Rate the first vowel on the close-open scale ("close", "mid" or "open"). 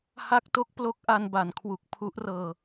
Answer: open